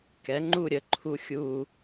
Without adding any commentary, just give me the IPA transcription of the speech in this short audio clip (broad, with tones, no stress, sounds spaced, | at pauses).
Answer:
k ɛ˩˥ ŋ͡ǃ u˥˧ ɾʲ ə˩˥ ǃʰ u˥ xʲ u˥˧